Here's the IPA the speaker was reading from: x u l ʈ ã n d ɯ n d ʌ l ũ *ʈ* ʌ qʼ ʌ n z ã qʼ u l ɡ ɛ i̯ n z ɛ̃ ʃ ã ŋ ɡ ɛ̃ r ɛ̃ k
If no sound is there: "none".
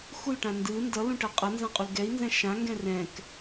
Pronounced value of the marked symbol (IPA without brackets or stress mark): ʈ